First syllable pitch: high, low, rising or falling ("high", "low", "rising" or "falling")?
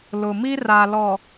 low